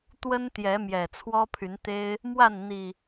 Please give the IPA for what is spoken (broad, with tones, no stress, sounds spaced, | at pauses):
t̪ w ə˦ n t̪ j ɛ˨˦ m j ɛ˨˩ t͡sʰ w ɔ˦ pʰ y˨˦ n t̪ e˦ ɪ̯ | m w a˥˨ n n̪ i˨˩